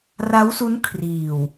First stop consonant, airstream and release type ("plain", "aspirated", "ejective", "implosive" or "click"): aspirated